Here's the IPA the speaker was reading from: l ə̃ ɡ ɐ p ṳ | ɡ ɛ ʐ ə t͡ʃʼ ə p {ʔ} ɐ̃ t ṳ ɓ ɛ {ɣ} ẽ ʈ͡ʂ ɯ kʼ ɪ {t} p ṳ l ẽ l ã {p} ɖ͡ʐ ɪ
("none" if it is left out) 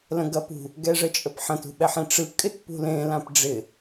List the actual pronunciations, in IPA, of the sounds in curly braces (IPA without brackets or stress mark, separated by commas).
ħ, ħ, t, p